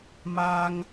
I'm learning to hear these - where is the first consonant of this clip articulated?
lips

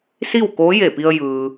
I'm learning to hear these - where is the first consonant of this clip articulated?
tongue tip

